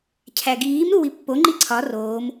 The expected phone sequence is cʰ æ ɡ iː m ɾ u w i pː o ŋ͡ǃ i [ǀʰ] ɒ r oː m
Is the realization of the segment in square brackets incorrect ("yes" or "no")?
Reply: no